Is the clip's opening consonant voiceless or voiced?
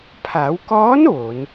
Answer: voiceless